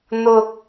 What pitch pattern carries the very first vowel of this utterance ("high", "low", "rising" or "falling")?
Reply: low